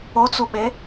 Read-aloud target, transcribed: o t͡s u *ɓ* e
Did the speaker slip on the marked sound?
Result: no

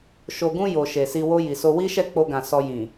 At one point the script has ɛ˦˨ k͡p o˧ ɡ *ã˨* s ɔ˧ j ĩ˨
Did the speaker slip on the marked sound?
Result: no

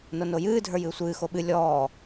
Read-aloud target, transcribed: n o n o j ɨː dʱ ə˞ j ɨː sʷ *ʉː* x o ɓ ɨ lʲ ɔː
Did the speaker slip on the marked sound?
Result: yes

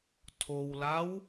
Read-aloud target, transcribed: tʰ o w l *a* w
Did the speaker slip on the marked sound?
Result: no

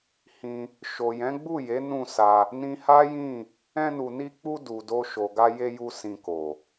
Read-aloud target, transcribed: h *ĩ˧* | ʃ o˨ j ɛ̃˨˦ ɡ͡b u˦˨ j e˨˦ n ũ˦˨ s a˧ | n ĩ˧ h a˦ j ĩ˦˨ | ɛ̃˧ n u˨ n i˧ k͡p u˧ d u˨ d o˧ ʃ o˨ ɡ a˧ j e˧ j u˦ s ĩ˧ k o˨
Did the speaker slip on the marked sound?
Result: no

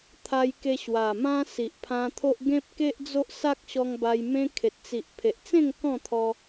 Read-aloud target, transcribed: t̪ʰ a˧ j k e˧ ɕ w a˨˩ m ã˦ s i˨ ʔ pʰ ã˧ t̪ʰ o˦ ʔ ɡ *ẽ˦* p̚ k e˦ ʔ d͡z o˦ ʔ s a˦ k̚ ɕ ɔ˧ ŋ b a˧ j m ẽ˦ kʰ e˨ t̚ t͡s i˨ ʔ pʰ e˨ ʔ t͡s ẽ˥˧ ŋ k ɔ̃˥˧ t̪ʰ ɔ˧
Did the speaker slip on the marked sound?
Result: no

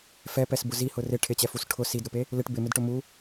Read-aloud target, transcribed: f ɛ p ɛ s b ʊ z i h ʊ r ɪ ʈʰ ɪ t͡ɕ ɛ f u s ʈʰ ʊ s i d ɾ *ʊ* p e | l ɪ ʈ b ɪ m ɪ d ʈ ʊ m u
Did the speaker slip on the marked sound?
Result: no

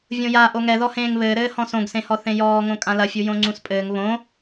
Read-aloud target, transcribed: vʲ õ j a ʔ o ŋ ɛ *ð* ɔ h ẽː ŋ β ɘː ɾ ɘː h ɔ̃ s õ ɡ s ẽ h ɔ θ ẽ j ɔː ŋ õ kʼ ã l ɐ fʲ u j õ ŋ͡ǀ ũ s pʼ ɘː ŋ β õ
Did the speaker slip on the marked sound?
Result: no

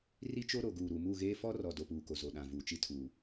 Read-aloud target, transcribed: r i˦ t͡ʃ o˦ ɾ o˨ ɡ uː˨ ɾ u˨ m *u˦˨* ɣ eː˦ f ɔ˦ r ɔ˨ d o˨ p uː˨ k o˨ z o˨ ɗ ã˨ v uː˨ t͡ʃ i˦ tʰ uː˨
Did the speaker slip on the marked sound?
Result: no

